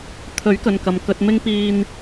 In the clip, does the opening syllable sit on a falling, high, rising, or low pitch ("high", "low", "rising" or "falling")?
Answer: rising